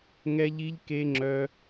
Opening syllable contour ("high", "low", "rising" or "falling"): high